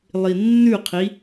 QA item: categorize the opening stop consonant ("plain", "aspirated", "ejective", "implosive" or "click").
aspirated